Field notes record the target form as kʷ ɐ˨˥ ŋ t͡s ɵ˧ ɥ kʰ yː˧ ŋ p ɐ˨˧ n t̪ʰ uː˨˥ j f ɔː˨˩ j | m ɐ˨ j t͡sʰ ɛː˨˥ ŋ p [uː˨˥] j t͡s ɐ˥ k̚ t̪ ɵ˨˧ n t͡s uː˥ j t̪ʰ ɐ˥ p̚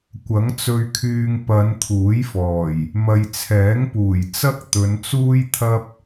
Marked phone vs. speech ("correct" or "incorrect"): incorrect